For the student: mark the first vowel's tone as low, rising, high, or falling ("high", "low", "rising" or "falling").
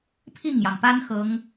falling